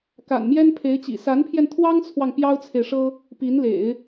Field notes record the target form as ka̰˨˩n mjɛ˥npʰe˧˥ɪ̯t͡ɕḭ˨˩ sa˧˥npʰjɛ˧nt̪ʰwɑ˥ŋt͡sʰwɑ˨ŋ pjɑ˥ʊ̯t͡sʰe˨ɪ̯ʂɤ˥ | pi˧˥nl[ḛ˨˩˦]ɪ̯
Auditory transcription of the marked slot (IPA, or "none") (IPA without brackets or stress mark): ḛ˨˩˦